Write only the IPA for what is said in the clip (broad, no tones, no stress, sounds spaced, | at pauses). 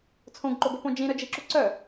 t͡sʰ õ ɡ ǃ o ɡ o p õ d͡ʒ ĩ ɾ œ d͡ʒ i ǁ u ǀ œ